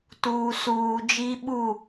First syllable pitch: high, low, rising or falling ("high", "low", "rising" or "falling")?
low